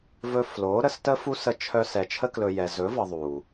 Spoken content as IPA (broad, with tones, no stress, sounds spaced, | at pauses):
v ɵ˧ f l o˨˦ ɾ ə˨˦ s t ə˦ f u˦ s ə˧ t͡ʃʰ œ˧ s ɛ˨ t͡ʃʰ ə˧ k l ɵ˨ j ɛ˨ z ɵ˨˦ v ɤ˨ ðˤ u˨